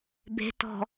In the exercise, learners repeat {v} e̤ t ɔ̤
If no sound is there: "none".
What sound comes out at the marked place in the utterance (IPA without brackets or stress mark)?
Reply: b